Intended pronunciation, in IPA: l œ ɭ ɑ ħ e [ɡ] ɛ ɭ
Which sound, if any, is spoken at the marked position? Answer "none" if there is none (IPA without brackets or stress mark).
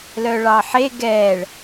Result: ɡ